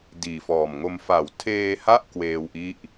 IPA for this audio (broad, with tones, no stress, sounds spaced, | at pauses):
d iː˨˩ f ɔː˨˩ m ŋ o˧ m f a˩˦ w tʰ eː˧ h a˥˩ ʔ k w eː˧ w ʔ i˦˥ ʔ